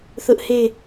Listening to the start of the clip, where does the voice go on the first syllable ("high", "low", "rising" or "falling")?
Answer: high